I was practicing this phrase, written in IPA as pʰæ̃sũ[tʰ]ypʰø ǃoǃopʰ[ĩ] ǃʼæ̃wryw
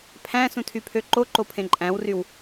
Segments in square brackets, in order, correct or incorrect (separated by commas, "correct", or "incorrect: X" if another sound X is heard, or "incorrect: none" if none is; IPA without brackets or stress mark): correct, incorrect: ẽ